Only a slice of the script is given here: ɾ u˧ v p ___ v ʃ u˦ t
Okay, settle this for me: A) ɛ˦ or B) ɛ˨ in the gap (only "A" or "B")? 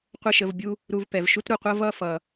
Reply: B